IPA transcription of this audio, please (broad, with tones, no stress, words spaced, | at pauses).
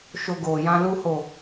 ʃo˧ɡoː˨jã˦ lu˦ho˧